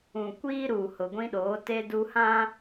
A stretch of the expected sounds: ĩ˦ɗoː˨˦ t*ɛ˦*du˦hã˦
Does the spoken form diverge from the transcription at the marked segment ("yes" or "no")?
yes